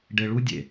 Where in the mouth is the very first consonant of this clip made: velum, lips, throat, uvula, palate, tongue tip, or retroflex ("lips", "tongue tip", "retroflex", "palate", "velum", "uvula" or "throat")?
retroflex